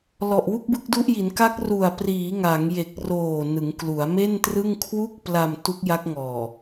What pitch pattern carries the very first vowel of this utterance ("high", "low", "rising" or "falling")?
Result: low